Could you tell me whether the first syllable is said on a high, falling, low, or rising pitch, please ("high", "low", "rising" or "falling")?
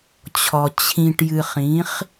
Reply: low